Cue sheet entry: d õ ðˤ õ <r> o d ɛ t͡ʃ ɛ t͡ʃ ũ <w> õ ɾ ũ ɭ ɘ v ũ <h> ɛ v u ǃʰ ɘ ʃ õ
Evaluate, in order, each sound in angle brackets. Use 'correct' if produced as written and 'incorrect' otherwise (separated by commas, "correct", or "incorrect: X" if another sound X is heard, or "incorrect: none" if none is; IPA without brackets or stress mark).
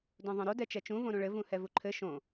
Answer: incorrect: ɾ, incorrect: v, correct